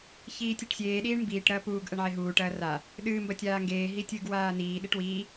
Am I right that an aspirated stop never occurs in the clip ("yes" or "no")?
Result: yes